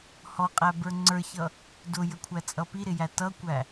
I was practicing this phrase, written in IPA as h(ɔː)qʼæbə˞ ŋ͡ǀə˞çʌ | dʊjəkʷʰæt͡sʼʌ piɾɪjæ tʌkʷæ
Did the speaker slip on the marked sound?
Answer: yes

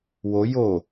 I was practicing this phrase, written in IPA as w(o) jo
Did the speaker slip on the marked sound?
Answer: no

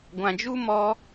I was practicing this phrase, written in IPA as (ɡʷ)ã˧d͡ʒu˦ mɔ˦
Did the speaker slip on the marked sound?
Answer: no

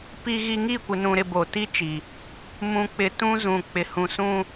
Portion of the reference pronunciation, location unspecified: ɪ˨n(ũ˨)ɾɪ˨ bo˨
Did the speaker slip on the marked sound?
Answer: no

